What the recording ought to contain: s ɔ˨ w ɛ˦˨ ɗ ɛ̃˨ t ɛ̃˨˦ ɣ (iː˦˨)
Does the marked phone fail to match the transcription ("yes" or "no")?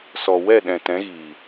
yes